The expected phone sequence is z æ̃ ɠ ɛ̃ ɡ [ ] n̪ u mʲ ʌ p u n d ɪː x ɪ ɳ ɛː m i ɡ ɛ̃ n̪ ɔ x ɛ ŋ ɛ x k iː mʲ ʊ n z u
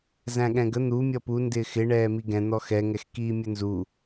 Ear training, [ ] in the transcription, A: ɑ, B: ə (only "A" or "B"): B